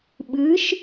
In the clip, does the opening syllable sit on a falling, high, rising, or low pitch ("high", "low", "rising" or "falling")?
rising